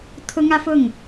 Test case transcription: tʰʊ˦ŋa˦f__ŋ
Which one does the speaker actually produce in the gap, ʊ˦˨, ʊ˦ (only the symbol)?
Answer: ʊ˦˨